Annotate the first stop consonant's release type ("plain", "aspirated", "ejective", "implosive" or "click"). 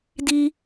plain